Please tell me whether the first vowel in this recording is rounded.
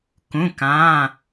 yes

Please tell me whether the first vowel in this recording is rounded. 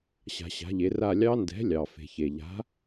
no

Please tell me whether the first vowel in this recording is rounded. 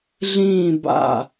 no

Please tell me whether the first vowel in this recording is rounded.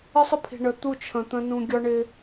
no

